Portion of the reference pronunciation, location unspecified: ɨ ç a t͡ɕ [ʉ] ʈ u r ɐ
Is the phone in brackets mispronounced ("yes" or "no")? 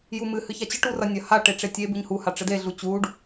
yes